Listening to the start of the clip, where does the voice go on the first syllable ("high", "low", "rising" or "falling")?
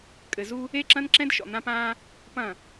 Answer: low